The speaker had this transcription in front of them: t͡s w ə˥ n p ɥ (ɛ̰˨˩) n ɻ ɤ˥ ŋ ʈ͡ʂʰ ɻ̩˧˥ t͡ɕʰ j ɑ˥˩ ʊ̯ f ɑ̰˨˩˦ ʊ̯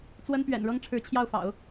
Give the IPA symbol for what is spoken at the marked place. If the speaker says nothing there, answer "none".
ɛ̰˨˩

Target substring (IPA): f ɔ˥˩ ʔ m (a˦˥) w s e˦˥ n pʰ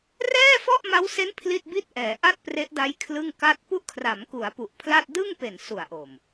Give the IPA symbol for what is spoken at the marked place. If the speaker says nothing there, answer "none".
a˦˥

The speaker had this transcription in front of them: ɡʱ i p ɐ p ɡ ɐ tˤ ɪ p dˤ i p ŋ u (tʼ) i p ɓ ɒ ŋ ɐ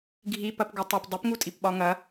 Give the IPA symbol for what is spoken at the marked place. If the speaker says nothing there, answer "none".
tʼ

